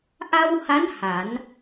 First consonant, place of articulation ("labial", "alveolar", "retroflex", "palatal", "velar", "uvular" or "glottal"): glottal